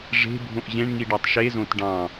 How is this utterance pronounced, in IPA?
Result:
ʐ e̤ bʱ õ ʔ ʑ ẽ ɳ ŋ i ɖ ɑ tˤ ʃ e z õ t ɖ ɑ̃

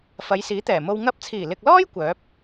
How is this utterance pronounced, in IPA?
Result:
f ɐ˨˧ j s iː˨˥ t̪ ɛː˨˩ m o˧ w ŋ ɐ˧ p̚ t͡sʰ iː˨˩ l ɪ˨ k̚ l ɔː˥ j kʷ œː˨˥ p̚

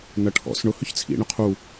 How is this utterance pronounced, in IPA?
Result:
n ɐ ʈʰ ɔ̰ s ɳ ʊ h ʏ ç t͡sʰ ḭ ɳ ʊ qʰ u

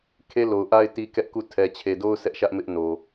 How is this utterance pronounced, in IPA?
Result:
kʰ e˦ l o˨ ʊ̯ ʔ a˦ ɪ̯ t i˦ k ɛ˦ ʔ k u˦˨ tʰ ɛ˨ t͡ɕʰ e˨ d o˦ ʊ̯ s ɛ˦ ʔ ʃ ä˦ ʔ m ɪ˦ ʔ n o˨

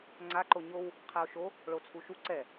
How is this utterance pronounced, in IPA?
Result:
ŋ͡ǀ a ǃ o ɲ o w | qʰ ɛ o̯ ʃ o | ɭ o t͡sʰ u ʃ u ǀ ɛ

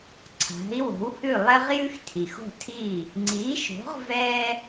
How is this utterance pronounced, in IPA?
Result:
ǀʰ a̤˩˥ i̯ w o̤˩˥ w h ʉ˥˩ lˠ ɛ˥ ʁ j ʉ˥ x tʰ i˩ x o̤˥˩ tʰ i˥˩ | ŋ͡ǀ iː˩˥ ʃ o̤˩˥ ʁ v ɛː˥

